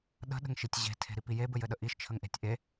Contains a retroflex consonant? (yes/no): no